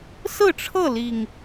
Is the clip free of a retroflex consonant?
no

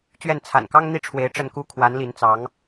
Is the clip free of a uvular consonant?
yes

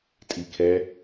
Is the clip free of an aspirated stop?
no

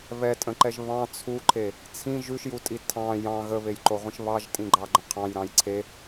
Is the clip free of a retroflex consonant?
yes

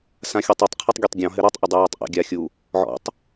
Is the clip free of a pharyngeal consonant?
no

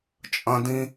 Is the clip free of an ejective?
no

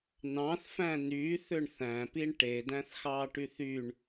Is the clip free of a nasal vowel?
no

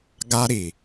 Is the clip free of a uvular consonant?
yes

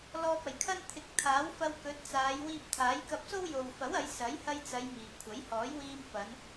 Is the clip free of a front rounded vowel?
yes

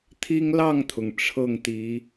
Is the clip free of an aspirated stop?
no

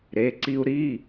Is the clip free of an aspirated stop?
yes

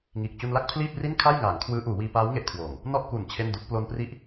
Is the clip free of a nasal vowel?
yes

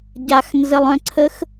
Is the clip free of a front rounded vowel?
no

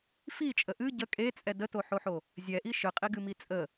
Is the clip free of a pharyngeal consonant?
no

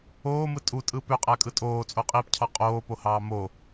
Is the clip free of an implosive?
yes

